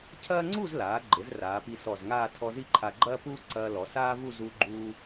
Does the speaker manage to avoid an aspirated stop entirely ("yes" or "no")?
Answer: no